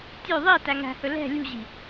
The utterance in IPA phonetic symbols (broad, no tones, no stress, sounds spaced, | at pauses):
tʲ ʉ ðˤ i t æ ŋ æ̤ h ɵ l ɛ̤ lʲ ṳ ʑ i̤